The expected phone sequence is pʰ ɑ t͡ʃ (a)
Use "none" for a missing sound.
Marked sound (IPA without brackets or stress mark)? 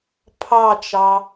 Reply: ɑ